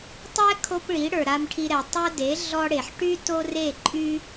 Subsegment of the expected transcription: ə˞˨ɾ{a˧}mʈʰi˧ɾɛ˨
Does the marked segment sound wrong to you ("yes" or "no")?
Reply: no